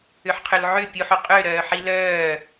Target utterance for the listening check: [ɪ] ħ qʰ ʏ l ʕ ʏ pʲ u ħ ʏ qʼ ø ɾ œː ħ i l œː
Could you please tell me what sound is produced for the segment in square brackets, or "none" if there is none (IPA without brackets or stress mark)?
ʏ